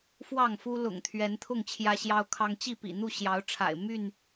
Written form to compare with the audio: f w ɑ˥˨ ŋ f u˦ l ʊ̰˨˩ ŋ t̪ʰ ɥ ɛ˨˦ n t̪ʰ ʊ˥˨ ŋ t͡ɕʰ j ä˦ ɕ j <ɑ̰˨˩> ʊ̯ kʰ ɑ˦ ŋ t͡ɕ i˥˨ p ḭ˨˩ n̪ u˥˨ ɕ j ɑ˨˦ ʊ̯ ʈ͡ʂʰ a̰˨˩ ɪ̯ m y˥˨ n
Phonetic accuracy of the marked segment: incorrect: ɑ˦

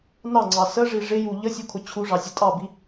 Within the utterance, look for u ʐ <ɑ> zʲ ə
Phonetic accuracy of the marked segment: correct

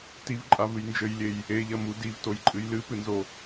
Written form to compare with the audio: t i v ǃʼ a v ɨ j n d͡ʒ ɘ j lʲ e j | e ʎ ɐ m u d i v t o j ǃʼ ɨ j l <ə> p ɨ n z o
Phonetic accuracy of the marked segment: incorrect: ɨ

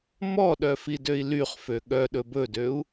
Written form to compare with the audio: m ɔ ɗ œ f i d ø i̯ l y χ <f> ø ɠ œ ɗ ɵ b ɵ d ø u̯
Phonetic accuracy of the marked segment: correct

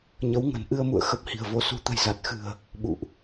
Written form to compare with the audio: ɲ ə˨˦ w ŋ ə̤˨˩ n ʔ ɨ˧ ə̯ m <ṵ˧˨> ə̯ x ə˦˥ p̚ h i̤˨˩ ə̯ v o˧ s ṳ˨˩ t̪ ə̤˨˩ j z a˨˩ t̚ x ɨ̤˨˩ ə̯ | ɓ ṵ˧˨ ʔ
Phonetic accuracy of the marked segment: correct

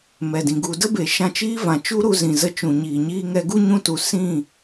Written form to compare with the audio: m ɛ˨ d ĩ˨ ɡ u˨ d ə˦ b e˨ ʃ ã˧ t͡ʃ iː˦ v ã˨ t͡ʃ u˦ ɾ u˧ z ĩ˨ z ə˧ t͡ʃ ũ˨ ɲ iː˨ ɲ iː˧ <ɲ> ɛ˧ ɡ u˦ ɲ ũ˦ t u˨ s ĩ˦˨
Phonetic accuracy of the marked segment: incorrect: ŋ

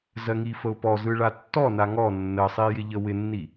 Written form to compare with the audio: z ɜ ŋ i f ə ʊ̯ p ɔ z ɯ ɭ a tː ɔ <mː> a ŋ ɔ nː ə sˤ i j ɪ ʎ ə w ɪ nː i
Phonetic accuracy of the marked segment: incorrect: n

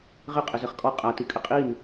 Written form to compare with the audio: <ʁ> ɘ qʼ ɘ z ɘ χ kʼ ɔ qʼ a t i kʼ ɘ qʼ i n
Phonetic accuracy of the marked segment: correct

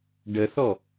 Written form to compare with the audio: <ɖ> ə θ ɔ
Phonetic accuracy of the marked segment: correct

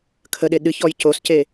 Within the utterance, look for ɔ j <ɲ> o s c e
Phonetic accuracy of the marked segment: incorrect: c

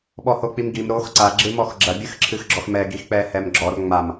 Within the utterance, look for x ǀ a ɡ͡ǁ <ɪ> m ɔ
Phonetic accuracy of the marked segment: incorrect: ɨ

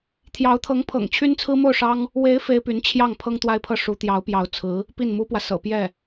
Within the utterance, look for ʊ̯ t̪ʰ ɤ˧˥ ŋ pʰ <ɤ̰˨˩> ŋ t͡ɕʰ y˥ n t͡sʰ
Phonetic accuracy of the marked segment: correct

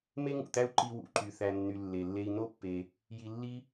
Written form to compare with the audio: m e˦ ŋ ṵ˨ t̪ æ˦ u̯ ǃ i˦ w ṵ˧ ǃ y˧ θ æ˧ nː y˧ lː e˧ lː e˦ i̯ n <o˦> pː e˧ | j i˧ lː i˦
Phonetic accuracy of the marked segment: correct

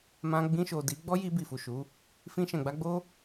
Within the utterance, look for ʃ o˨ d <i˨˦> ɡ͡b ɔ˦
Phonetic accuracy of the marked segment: correct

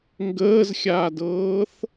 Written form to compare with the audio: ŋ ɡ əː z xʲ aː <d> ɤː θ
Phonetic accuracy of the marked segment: correct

